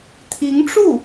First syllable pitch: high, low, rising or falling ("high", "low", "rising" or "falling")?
rising